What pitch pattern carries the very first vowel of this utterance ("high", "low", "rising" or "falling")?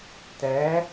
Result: rising